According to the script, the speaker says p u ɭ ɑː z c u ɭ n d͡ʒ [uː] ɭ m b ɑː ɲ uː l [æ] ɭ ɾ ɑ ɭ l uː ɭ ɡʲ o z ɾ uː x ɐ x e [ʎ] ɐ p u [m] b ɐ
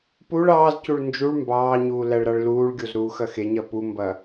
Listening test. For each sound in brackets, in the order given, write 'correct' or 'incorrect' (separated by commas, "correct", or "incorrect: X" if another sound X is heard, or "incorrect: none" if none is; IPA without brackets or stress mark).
incorrect: u, correct, incorrect: ɲ, correct